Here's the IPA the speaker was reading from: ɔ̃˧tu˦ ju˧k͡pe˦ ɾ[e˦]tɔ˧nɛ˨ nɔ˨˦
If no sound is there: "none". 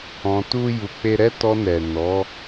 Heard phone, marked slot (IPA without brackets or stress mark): ɛ˦